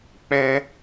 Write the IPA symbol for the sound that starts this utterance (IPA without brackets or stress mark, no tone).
k͡p